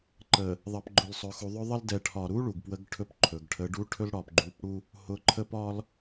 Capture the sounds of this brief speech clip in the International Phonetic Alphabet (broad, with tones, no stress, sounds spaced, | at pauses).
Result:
ǃ ə˨ | ðˤ ə˨ p ɡ͡ǃ ʊ˨ l sˤ ɵ˨ x u˨ ðˤ ɵ˦ ðˤ ə˦ l d ɛ˨ ʈʰ ɒ˨ ɾ u˦ ɭ u˨ ɡ p w ə˦ ɡ ʈʰ ɵ˦ p ǃʰ ɵ˨ ɡ ʈʰ ə˨˦ ɖ u˦ ʈʰ ɵ˦ l ɽ ɒ˨ p ɡ͡ǃ u˨˦ p ɽ u˦ | h ʊ˨ ǃʰ ə˦ p ɒ˦ l